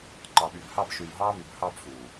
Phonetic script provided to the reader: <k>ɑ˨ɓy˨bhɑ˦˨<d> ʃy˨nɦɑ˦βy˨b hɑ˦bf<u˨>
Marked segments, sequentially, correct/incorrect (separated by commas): incorrect, incorrect, correct